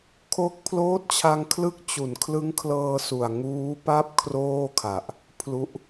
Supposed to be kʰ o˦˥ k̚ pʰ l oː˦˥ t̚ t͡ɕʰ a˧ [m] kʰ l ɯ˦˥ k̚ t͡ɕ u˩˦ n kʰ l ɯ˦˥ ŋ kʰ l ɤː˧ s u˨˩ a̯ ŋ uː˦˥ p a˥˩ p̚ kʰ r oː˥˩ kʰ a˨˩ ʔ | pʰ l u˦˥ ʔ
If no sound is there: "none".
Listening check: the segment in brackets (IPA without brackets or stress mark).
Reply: ŋ